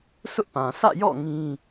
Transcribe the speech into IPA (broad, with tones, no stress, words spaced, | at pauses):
sʊ˦ʔpã˨ sʰä̰˦˨jɔ̰˦˨ ŋĩ˦